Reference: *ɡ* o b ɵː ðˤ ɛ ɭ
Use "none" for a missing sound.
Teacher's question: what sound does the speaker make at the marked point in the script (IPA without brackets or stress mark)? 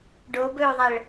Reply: ɖ